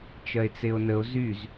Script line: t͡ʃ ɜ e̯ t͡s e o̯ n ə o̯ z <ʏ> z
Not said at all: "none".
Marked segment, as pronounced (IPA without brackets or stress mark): y